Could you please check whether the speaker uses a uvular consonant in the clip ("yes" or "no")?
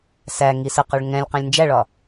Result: yes